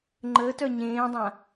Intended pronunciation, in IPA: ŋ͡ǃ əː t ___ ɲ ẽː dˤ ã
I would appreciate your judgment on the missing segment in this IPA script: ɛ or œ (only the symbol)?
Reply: œ